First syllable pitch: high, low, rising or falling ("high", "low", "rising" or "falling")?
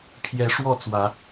rising